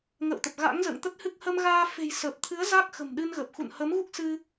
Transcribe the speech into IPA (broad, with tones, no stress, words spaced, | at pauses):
ŋə̰ː˧˨wt̪ə˨˩p̚ ɣa̰˧˥ŋzə̰ː˧˨ŋt̪ə˦˥t̚hɨ˦˥k̚ hə˧mɣaː˧fe̤˨˩j səː˨˩p̚t̪ʰɨ˨˦ə̯ za˦˥k̚xə̤˨˩mɗɨ˧nɣə˨˩p̚ xṵ˧˨nhə˨˦mɣu˦˥k̚ sɨ˧